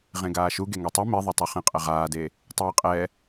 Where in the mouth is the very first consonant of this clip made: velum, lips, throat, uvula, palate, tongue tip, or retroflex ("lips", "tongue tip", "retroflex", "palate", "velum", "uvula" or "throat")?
uvula